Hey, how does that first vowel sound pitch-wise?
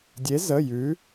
rising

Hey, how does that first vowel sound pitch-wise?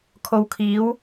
low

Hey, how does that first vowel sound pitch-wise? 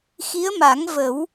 rising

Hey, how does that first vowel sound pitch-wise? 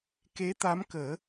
rising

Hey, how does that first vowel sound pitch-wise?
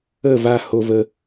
falling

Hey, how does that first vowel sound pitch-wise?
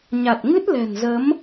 low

